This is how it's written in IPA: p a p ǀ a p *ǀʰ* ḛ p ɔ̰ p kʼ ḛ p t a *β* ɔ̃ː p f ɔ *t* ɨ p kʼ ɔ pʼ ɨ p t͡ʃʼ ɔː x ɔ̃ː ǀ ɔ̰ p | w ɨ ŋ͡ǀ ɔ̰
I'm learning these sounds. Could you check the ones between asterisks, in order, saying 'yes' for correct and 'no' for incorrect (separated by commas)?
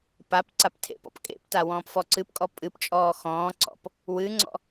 no, no, no